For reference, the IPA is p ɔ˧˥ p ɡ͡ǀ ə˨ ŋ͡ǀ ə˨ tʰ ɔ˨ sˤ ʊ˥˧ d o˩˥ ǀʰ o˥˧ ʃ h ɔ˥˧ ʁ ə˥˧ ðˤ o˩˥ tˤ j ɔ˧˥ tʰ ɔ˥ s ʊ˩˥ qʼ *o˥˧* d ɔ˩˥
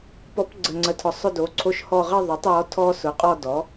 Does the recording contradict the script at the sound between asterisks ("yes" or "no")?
yes